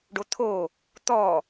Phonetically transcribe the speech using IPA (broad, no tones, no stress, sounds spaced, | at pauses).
ɖ o t̪ʰ o | t̪ ɔ